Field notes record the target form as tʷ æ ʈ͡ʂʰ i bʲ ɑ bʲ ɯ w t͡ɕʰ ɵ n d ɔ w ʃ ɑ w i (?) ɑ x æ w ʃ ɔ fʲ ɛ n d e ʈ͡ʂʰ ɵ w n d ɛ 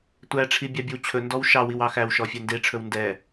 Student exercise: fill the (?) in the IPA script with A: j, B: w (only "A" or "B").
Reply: B